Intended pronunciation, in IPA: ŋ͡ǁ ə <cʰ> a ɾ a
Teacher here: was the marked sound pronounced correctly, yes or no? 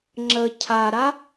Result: yes